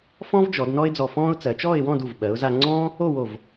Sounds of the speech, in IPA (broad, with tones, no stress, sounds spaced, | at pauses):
f ɔ̃˥ v d͡ʒ ɔ˩˧ d n ɔ˥ ɪ̯ d͡z ɔ˧ f ɔ̃ː˥ ʊ̯ t͡s ɜ˩˧ t͡ʃ ɔː˥˧ ɪ̯ w ɔ̃˥˧ d u˧˩ v ɓ ɜ˩˧ ʊ̯ z a˧ ŋ͡ǀ ɔ̃ː˥ | o˥˧ w o˧˩ v